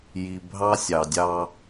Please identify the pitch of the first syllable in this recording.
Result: low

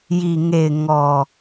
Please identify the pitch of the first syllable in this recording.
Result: low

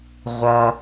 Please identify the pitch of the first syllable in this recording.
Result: low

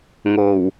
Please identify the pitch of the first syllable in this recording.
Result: low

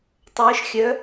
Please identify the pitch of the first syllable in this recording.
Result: rising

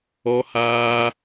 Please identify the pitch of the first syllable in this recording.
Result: high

